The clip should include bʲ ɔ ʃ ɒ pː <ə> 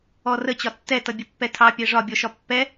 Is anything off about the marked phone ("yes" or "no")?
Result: yes